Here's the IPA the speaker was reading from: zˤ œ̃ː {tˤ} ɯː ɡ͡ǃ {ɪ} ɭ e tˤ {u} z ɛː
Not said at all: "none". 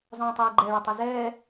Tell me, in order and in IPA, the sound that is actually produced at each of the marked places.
tˤ, ɛ, ɯ

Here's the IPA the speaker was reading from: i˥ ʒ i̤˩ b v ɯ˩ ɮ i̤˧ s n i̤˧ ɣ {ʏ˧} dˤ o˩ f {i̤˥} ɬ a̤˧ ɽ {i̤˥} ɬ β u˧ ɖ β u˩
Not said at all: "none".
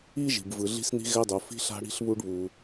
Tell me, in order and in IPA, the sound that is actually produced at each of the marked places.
ɛ˧, i̤˧, i̤˧

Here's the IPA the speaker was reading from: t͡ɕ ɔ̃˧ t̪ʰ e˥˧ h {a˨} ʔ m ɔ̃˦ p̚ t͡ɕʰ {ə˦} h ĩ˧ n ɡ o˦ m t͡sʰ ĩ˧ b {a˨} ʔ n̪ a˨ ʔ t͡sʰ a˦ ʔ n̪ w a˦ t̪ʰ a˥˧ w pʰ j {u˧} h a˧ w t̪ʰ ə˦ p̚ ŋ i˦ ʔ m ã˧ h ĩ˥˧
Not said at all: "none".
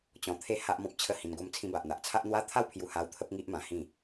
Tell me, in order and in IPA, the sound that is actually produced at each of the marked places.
a˦, ə˦, a˨, u˧

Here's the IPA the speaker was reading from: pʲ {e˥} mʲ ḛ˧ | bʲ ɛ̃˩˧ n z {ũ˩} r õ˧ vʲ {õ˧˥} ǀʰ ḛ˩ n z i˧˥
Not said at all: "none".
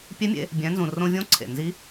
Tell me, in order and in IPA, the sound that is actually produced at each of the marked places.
e˧˥, ũ˩, õ˧˥

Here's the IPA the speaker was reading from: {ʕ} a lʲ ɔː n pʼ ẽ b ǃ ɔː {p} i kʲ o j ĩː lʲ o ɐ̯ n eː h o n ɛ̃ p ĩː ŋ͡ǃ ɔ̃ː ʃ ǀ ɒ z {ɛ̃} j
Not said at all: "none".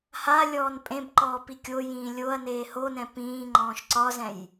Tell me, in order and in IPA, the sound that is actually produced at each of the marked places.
h, p, ɛ̃

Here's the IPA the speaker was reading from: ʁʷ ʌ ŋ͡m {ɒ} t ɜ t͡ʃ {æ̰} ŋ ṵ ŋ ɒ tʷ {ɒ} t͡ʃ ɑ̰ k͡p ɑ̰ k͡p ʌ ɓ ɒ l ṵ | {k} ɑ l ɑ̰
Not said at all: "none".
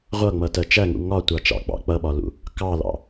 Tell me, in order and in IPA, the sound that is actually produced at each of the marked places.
ʌ, æ, ɑ, k

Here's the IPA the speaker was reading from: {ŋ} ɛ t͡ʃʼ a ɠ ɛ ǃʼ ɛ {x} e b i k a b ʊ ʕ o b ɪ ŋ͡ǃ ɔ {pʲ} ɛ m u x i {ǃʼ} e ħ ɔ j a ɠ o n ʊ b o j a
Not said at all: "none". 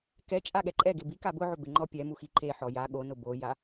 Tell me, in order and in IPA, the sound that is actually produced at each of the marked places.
k, ɡ, pʲ, ǃ

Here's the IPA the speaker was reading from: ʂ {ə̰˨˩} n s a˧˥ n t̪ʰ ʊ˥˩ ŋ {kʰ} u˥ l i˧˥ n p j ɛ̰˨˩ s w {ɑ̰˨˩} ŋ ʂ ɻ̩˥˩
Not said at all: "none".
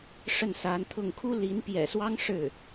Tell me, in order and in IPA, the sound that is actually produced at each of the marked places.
ə˥˩, kʰ, ɑ˥

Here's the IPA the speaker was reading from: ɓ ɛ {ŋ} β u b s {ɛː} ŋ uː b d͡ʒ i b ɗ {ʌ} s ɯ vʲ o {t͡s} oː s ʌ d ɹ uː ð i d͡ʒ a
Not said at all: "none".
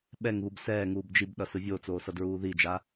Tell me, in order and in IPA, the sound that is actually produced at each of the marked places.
ŋ, ɛː, ʌ, t͡s

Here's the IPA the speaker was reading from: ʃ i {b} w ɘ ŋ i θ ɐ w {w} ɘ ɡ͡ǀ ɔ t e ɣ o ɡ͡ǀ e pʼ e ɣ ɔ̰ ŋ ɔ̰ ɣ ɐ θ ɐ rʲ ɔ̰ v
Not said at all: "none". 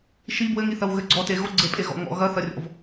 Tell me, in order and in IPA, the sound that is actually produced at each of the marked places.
b, ɣ

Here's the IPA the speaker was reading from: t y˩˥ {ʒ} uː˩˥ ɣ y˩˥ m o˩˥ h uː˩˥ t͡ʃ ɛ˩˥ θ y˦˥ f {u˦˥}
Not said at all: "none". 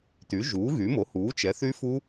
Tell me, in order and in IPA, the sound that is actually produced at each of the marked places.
ʒ, u˦˥

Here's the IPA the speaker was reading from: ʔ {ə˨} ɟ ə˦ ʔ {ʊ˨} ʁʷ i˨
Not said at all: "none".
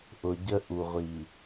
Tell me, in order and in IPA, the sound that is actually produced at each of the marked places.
ʊ˨, u˨

